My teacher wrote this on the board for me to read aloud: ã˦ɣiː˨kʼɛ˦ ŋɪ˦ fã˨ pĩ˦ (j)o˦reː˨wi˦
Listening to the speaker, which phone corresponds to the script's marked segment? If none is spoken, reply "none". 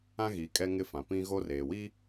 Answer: ɣ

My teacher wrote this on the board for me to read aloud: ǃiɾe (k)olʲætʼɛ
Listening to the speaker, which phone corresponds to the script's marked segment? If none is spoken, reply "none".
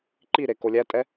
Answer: k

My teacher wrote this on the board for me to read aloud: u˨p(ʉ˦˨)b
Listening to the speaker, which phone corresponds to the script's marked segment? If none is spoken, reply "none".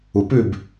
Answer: ʉ˦˨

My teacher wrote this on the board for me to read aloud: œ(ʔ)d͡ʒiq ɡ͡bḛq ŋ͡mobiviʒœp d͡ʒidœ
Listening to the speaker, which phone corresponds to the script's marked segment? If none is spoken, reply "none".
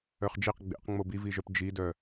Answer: χ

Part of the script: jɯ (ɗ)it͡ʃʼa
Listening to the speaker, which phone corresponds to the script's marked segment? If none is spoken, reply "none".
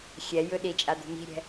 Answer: ɗ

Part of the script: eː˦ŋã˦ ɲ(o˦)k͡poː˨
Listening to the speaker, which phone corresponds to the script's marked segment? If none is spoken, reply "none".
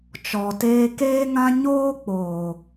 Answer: oː˦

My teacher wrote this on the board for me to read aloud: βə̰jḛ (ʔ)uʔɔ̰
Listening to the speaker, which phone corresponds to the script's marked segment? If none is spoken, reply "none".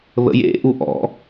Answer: ʔ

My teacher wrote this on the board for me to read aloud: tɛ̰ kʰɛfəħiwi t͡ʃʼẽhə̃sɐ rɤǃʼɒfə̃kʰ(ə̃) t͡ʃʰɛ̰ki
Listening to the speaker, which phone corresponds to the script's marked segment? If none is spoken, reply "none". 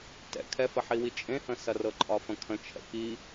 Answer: ə̃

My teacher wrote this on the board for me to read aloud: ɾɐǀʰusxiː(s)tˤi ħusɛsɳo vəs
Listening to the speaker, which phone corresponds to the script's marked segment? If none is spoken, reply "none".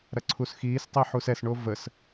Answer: s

